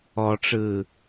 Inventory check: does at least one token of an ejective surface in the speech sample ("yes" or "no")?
no